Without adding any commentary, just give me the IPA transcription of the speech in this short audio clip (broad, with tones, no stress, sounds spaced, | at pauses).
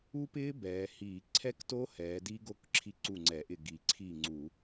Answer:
u˦˥ p ɪː˦˥ b ɛː˩˧ h iː˧˩˧ ǀʰ ɛ˦˥ k t o˦˥ h ɛː˩˧ d i˦˥ ɡ o˦˥ k ǁʰ i˥˩ ǀ u˥˩ ŋ͡ǀ ɛ˧˩˧ ʔ ɪ˥˩ ɡ i˧˩˧ ǀʰ iː˥˩ ŋ͡ǀ u˧˩˧